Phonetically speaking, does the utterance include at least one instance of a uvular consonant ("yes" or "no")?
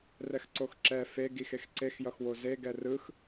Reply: no